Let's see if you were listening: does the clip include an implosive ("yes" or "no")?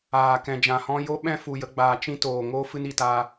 yes